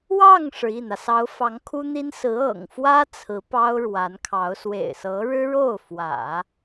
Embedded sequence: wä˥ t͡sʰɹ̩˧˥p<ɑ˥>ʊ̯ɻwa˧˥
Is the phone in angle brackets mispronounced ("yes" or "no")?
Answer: no